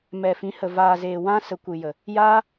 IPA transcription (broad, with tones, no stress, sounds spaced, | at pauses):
m ɛ˨ f ĩ˨˦ h ə˨ v aː˨ z eː˨ w ã˦ s ə˨ kʷ ɨ˨ j ə˨ | j aː˦